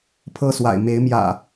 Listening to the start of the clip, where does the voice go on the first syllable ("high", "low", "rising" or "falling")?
high